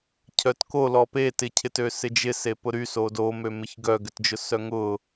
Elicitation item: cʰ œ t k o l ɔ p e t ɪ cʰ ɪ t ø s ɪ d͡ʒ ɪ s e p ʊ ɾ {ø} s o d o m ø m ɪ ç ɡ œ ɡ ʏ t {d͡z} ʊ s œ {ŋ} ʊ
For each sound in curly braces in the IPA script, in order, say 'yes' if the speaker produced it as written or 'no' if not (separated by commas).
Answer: no, no, yes